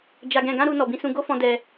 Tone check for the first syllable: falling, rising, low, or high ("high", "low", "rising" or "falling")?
low